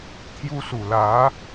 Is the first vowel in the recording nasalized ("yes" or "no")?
no